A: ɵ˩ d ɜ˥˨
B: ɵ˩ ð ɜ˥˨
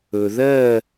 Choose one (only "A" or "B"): B